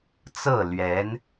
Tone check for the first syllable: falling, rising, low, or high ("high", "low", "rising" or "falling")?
falling